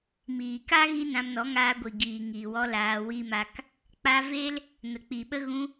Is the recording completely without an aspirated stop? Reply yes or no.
yes